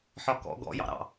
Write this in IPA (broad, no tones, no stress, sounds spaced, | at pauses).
ħ ɒ k ɔ̰ ɡ ɔ̰ j ɑ̰ ɾ ɑ̰